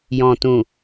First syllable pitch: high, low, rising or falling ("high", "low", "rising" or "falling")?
low